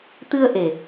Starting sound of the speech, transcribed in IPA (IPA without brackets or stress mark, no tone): t̪